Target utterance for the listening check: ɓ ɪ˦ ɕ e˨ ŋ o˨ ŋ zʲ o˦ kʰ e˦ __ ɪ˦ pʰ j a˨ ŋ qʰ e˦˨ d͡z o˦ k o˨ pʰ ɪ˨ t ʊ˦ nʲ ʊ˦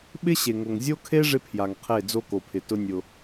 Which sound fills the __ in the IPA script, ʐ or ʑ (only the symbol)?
ʐ